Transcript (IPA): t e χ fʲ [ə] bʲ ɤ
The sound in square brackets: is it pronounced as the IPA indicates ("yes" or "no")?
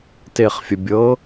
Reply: yes